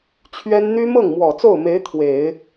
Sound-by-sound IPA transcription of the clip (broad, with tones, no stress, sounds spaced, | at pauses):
t͡ɕʰ ɥ ɛ˥ n n̪ y˥ m ɤ˥˩ ŋ m w ɔ˨˩ t͡s o˥˩ ʊ̯ m e˧˥ ɪ̯ t̪ʰ w e˨˩˦ ɪ̯